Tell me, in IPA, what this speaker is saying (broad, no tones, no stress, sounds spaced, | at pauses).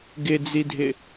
ɡ ɪ d͡z i dʱ ɪ